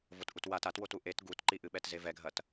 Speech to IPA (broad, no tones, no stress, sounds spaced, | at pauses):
v o t ʔ u t w a t a t w o t u ʔ e t ɡ u t ǃ i ʔ ɨ ɓ ɛ t z e v ɛ ɡʱ ɐ t